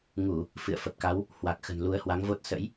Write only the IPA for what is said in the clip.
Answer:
ŋu˧˩˨ | fɨ̰˧˨ə̯ fə˨˩p̚ka˨˦w | hwa˨˩k̚xə̤˨˩n lu˨˦ə̯hwa˨˦ŋvo˦˥t̚ sə̰˧˥j

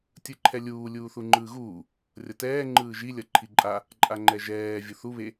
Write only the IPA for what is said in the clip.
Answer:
tʲɯǃʰɛlʲuː lʲuːθuŋ͡ǃɯːɣuː | rʲʌtɛː ŋ͡ǃɯːʒi lʲʌǃʰiǃʼa | ǃʼaŋ͡ǃɛʒɛː vʲuθu βe

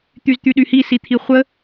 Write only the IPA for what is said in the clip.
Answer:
t̪yzt̪yɗyhi sit̪ʰiχʷə

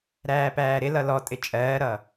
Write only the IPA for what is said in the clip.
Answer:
ɾæːpæːɾɪlʌ lɔtʼɪ t͡ʃʼɜːɾʌ

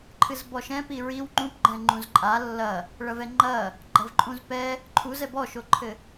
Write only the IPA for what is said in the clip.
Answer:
ǃʰɨzbɔʃɛ̃pi ɹiw ŋ͡ǃũpɡ͡ǃɛ̃ ŋ͡ǃũzǃʼa lːɐ | ɭɐvɛŋ͡ǃɐ | ɡ͡ǃɐvǃʼũzpɛ | ǃʰuzɛ bɔʃoǃʰɘ

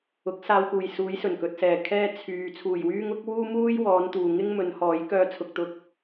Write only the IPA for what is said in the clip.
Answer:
ʊ˨˥k̚saː˧wkuː˨˩j suː˨˧jsɵ˨˩nkɵ˨t̚sɛː˨˩ kʰɛː˥ t͡sʰyː˨ t͡sʰuː˨˩jwyː˥ŋ ʊ˨˥k̚ wuː˥muː˥jwɔː˨˧n t̪uː˨ ŋɪ˥ŋmɵ˨˧n hɔː˨˥j kœː˧t͡sʰʊ˨k̚t̪ʊ˨˥k̚

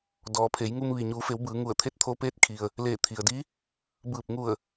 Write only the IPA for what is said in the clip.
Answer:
dɔː˩˧pʰe˩˧jŋu˧m ʋi˩ɲuː˩˧fe˩˧w bɯː˩˧ŋu˧˩ə̯t̪ʰe˥˨t̚ t̪ʰo˧peː˧˥t̚kʰi˩ə̯ | leː˧˩t̪ʰi˩ə̯di˧˥ | bɯː˧˩p̚ŋu˧˩ə̯

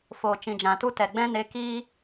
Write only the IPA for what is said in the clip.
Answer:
foː˨t͡ʃĩ˨d͡ʒã˨tu˦ tɛ˨ ɡ͡bɛ̃˦ ne˧kiː˦

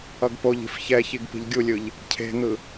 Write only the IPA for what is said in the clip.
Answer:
ʌɡpoʎi̤f çɛçiɡ pi̤ʎɡʲulʲɯʎ | cʰe̤n̪ɯ

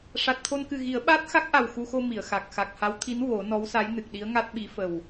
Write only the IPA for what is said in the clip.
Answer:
ʂa˨˩t̚t̪ʰo˧nkɨ˨˩ɣi˨˩˦ə̯ ɓaː˦˥t̚xa˦˥k̚ʔa˨˩w xu˧xo˧ mi˨˩˨ə̯xa˨˩k̚ xa˨˩k̚ha˧˥w t̪ʰi˧˥n wo˨˩˦ nɔ˧˥wsa˧˥jnɨ˨˩k̚ɗi˧˥ə̯ ŋa˦˥t̚ɓi˧˥ fə˨˩w

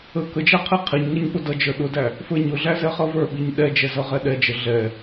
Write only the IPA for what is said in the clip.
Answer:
ə kəd͡ʒæ qʰiqʰiɲŋʌɲ ɓʊdʌd͡ʒə˞ ɗʊdæ | fə˞ɲʊɮæ zɛχʌvə˞ɓiɲ ɗɛd͡ʒɛ zʌʁɛɗɛd͡ʒə ɮɛ

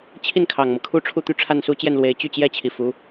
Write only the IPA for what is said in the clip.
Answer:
t͡ɕʰi˥˩nkʰɑ˨˩ŋmɤ˦ kʰu˥ʈ͡ʂʰu˥˧t̪y˥˧ ʈ͡ʂʰa˥˩nsu˥t͡ɕjɛ˥˩nlwe˧˥ɪ̯ t͡ɕy˥˩t͡ɕjɛ˥ t͡ɕʰi˨˩fu˧˥

